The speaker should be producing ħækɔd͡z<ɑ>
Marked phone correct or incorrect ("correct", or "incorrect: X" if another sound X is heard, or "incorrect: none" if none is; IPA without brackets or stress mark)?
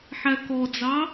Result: correct